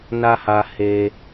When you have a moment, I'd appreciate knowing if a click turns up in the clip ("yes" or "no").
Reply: no